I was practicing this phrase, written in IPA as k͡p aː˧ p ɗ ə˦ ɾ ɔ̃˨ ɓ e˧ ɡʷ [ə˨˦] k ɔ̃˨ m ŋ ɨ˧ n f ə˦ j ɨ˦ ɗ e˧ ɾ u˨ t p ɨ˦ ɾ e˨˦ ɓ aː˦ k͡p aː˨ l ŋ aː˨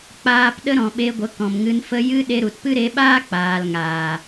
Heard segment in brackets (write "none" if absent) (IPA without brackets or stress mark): ə˨˦